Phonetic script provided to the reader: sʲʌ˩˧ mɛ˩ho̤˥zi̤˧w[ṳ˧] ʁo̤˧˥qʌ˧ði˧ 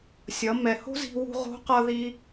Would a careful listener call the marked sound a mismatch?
no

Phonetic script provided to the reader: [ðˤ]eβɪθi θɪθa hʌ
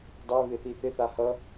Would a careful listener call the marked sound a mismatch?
yes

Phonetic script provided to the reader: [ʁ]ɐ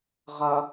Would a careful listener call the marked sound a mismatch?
no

